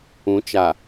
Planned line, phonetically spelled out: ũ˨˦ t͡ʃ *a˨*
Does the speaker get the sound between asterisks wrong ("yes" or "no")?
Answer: no